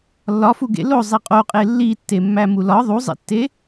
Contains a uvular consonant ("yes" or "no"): yes